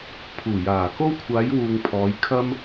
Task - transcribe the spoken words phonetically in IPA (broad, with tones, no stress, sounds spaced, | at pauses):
pʰ uː˨˩ j aː˨˩ k o˥ w kʷʰ aː˨˧ j w uː˨ ŋ pʰ ɔː˨˧ j kʰ ɐ˥ m